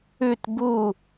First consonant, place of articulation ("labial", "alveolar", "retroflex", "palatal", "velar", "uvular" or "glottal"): alveolar